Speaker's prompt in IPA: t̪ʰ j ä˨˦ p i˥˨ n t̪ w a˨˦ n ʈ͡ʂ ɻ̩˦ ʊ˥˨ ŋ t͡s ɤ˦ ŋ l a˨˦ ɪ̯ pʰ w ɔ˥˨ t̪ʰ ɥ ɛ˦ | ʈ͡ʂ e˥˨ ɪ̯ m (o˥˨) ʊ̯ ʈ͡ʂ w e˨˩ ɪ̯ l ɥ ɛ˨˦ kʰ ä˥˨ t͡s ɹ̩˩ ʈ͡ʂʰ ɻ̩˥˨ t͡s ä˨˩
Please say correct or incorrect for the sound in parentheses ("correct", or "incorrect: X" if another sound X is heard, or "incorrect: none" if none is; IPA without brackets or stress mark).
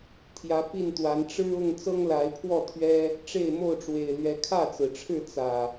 correct